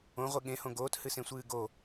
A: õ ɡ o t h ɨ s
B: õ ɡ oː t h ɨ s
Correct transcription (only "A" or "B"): B